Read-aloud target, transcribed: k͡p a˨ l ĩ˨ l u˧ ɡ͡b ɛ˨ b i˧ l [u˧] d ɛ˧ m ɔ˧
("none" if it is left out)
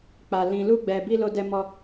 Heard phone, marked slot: o˧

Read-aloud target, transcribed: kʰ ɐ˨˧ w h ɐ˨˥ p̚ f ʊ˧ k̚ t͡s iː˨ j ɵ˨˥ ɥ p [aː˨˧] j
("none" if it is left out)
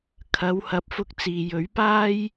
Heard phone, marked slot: aː˥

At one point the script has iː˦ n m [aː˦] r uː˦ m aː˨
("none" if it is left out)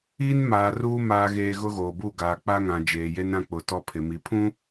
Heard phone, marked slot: aː˨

